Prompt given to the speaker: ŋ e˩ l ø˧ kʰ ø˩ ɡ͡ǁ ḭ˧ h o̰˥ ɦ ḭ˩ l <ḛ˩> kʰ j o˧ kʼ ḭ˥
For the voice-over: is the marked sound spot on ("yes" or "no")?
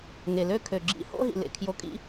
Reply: yes